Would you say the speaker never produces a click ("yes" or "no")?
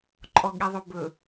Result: no